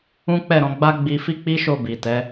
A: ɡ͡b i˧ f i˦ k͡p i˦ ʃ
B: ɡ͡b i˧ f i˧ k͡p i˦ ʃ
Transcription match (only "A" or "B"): A